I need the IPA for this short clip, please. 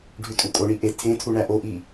ɖʱ ʉ tʼ u kʼ o ɳ i ʔ e tʰ ẽ tʰ u ɳ æ ʔ o ʔ i

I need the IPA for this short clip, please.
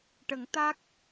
ʈ ə˨˩˦ ŋ t̪ a˦˥ k̚

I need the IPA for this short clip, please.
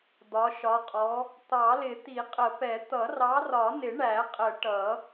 d̪ ɒ˨˦ ʃ ɒ˨˦ qʼ ɔ˨˦ | t̪ ɑ˨˩˦ l ɪ˨˩˦ t̪ i˨˩˦ qʼ ə˨˩˦ p ɛ˨˩˦ t̪ ʌ˨˩˦ r ɑ˨˦ r ɒ˨˩˦ n ɪ˨˩˦ ɳ æ˨˩˦ qʼ ə˨˩˦ ʈ ʌ˨˩˦

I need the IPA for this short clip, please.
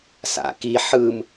s a̰ k i ħ ɯ m

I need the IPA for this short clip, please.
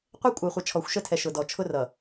qʷ ɛ˦ kʷʼ ə˞˨ χʷ ə˨ t͡ʃʰ ɔ˨ xʷ ʃ ə˦˨ tʰ ɛ˨ ʃ ʊ˨ d ɔ˨ t͡ʃʰ ʊ˦ r ʌ˨

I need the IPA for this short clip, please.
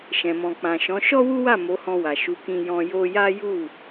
ʃ ɛ̃˨ m ɔ̃˨ k͡p ã˨ ʃ ɔ̃˨˦ ʃ ɔ˦ w u˦ w a˦˨ m o˨˦ h ɔ̃˧ w a˨ ʃ u˨˦ k ĩ˧ j ɔ̃˧ j o˧ j a˦ j u˦˨

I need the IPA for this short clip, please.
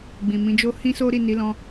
ɡ͡b ĩ˨ m ĩ˨˦ d͡ʒ o˦ h ĩ˦ s o˦ ɾ i˦˨ n i˨˦ l ɔ̃˧

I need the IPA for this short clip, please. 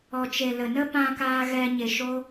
ɔ˨ t͡ʃ e˨ l ə˨ n ə˦ p ã˧ k aː˧ ɣ ɛ˧ ɲ e˨ ʃ o˦

